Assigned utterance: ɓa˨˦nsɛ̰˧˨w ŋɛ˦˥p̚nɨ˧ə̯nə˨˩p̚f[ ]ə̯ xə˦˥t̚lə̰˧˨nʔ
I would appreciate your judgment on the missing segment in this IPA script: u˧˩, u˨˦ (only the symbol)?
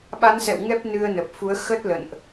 u˨˦